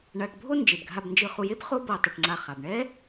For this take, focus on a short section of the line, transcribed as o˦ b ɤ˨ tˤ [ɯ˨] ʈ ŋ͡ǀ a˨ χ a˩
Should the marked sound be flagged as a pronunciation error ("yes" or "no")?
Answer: yes